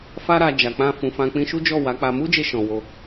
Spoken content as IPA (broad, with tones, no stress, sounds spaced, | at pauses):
f a˦ ɾ a˧ d͡ʒ a˨ k͡p ã˧ f ũ˨ f ã˧ k͡p ĩ˧ ʃ u˦ d͡ʒ ɔ˦˨ w a˨˦ k͡p a˧ m u˦ d͡ʒ e˧ ʃ ɔ̃˨ w o˧